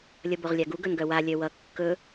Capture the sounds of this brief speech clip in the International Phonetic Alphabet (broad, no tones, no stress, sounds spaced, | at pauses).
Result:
lʲ ʌ b o ʁ lʲ a ɡ u ɡ ɵ n ɡ œ w a lʲ œ w ʌ kː ɵ